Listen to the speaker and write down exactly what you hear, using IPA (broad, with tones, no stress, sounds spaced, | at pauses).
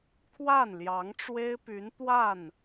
kʰ w a˥˩ n l j ɑ˧˥ ŋ ʈ͡ʂ w e˥ ɪ̯ p y˧˥ n t̪ w a˥˩ n